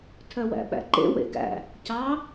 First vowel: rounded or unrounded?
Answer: rounded